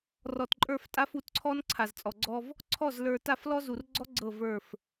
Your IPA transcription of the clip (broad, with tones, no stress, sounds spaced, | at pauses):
r ɔ˨ t ǃʼ ə˞˦˨ f tʼ a˦ f u˨˦ t ǀʰ ɔ˦ n ǀʰ a˨ z t͡sʼ ɔ˨ ɡ͡ǀ ɔ˦ v | ǀʰ ɔ˦˨ z l ə˞˨ t a˦˨ f l ɔ˦ z u˨ r ɡ͡ǀ ɔ˦ ɡ͡ǀ ɤ˦˨ v ə˞˦˨ f